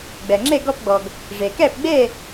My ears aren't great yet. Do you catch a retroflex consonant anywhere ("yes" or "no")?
yes